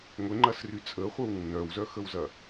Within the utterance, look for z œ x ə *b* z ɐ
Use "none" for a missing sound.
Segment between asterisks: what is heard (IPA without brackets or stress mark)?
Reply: w